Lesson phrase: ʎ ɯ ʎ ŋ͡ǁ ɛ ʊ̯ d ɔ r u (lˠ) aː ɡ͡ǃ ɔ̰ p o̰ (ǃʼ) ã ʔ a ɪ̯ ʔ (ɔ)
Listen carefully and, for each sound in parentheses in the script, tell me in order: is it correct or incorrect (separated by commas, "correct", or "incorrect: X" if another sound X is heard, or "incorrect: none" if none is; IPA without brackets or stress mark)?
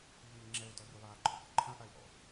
correct, incorrect: ǃʰ, incorrect: ɔ̰